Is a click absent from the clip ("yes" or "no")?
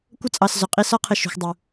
yes